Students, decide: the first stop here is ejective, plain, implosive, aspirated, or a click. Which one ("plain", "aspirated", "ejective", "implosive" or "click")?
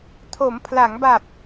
aspirated